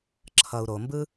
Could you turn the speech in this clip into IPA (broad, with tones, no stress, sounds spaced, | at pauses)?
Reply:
ǁʰ ʌ˨ u̯ ɾ o˨ m b ɯ˦